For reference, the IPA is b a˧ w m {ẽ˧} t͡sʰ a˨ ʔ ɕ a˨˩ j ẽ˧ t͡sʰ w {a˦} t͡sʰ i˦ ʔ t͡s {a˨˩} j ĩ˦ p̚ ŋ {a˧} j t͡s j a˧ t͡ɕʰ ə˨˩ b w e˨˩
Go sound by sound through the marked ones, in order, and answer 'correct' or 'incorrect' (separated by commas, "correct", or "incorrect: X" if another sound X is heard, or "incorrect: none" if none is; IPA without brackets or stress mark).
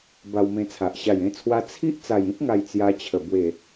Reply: correct, incorrect: a˧, correct, incorrect: a˨˩